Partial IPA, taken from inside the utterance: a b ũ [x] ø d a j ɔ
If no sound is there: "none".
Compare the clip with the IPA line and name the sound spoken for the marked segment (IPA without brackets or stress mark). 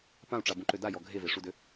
ǃ